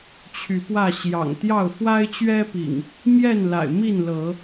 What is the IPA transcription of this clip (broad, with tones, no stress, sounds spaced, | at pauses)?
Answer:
t͡ɕʰ y˨˦ p w ä˥˨ ɕ j ɑ̰˨˩ ŋ t̪ j ɑ˥˨ ʊ̯ f w a˦ ɪ̯ t͡ɕ ɥ ɛ˦ p ḭ˨˩ ŋ | m j ɛ˥˨ n l a̰˨˩ ɪ̯ m i˥˨ n l ɤ˨˦